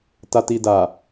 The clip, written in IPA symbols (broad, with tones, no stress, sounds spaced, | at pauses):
t a˨ t i˨ d a˨